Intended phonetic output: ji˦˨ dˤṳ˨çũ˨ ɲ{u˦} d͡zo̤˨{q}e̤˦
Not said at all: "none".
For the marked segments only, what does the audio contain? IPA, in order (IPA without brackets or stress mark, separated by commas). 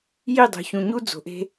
u˦, ʔ